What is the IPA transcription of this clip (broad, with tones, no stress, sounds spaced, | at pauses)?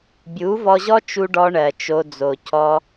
bʲ u˨˦ v ɔ˧ ʑ ɔ˦ t͡ʃ u˧ ɖ ɔ˧ ɳ ɜ˨ t͡ʃ o˧ d͡z o˨ c ɔ˧